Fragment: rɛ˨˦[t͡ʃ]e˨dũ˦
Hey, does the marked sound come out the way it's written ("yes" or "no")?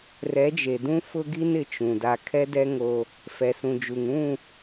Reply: no